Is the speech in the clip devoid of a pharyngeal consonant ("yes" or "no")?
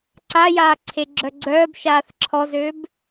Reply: yes